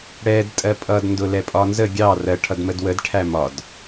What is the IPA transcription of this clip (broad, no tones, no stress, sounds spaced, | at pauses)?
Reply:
ɽ ɛ d tʼ ɜ pʼ ʌ d n d ʊ l ɛ pʼ ɒ n z ə ɡʲ ɑ r ɜ ʈʰ ʌ d m ə d w ə d ʈʰ æ m ɒ d